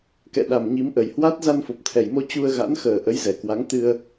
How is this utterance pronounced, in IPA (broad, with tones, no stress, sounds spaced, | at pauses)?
k ɛ̰˧˨ ɗ a˨˩ m ɲ i˨˦ m ʔ ə˨˩ j h w a˦˥ t̚ z a˧ n f o˨˩ p̚ t̪ʰ ɛ˨˩ j m o˧ t͡ɕ u˧ ə̯ ɣ a̰˧˥ n x əː˨˩ ʔ ə˨˦ j z ɛ˨˩ k w a˨˦ ŋ t̪ ɨ˧ ə̯